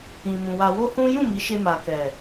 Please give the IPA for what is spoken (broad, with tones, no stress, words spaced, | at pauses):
ĩ˧mũ˧ wa˧wo˦hũ˦ jũ˦˨mi˨˦ʃe˧ ma˨kɛ˨